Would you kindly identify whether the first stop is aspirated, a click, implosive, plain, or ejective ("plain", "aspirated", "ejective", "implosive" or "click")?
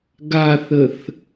plain